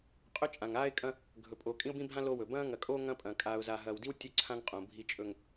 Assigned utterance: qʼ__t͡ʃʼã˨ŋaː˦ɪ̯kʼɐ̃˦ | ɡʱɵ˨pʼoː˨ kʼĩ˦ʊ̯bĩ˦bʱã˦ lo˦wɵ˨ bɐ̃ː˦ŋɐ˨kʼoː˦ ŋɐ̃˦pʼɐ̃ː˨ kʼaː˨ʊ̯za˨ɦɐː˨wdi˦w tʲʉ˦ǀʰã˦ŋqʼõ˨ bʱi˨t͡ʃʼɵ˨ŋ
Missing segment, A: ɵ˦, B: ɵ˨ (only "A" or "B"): A